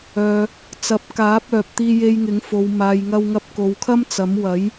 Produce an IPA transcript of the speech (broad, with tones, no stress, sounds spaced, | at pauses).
œː˨ | t͡s ɐ˨˥ p̚ k aː˨˥ p̚ œː˨ p̚ t̪ iː˧ j e˧ j ŋ ɪ˨˥ ŋ f o˨ w m aː˨ j ŋ ɐ˧ w ŋ ɐ˧ p̚ k o˨ w kʰ ɐ˥ m t͡s ɐ˨˥ m w ɐ˨˥ j